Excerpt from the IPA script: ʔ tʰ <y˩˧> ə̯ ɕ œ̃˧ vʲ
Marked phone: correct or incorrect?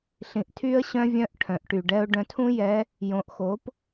incorrect